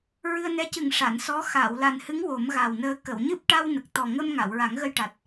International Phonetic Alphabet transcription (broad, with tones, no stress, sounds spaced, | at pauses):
ɹ ɨ˧ ə̯ n ɛ˧˥ c ɨ˨˩ ŋ ʂ a˨˩˨ n s ɔ˧˥ x aː˨˩˨ w l a˨˩ n h ɨ˧˥ ŋ w o˨˩˦ m ɣ a˨˩ w n əː˧ k ə˨˩˨ w ɲ ɨ˦˥ p̚ ʈ a˧ w n ə˨˩ k̚ t̪ ɔ˨˩ ŋ ə˧ m ŋ a˨˩˨ w ɹ a˨˩˦ ŋ ɣ ə˧ j ʈ a˨˩ t̚